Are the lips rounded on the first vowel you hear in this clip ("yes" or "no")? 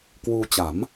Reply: yes